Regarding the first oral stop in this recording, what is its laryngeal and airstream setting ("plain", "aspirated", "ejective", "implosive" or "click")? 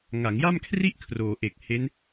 aspirated